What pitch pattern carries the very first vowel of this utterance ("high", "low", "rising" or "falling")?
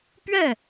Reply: falling